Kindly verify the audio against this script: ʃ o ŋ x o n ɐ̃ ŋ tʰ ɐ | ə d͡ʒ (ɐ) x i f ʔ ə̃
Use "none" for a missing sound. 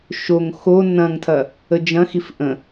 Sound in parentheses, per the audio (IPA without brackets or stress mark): ɐ̃